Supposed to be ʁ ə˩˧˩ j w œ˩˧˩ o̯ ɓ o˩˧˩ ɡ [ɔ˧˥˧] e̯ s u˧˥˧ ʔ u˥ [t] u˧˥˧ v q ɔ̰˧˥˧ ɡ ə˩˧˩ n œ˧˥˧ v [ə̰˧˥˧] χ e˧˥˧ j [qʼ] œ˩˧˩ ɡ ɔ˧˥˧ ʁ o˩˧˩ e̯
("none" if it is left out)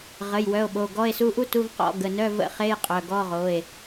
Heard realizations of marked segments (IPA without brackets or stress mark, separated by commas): ɔ˧˥˧, t, ə̰˧˥˧, qʼ